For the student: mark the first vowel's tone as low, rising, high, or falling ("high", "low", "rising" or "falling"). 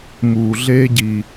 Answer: low